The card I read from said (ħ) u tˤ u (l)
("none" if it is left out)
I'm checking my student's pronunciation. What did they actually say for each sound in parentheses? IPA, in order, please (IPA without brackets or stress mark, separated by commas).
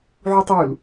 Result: ʕ, l